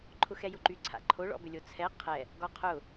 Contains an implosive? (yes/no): no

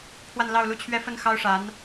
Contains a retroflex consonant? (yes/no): yes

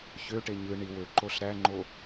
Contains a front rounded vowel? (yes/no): yes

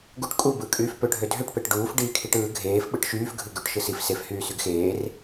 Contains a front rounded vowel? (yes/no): yes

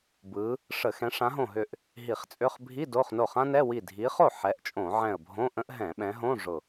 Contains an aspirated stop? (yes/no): no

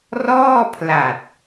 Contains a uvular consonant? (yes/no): no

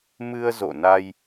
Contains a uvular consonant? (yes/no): no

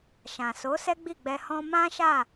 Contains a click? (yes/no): no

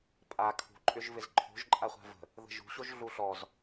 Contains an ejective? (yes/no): yes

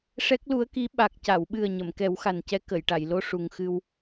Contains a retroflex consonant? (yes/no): yes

